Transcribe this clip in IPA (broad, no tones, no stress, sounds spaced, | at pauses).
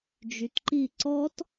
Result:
d͡ʒ y t ǃ i ǀ ɔ t